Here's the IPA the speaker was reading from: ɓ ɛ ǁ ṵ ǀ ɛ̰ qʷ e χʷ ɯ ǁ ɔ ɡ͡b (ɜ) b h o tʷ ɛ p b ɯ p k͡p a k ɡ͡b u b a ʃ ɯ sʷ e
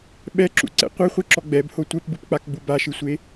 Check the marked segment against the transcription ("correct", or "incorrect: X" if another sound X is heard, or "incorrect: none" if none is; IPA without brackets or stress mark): incorrect: ɛ